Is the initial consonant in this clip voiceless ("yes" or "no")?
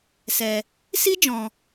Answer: yes